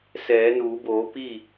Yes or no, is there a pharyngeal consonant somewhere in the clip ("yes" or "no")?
no